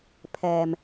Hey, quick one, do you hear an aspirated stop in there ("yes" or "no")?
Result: yes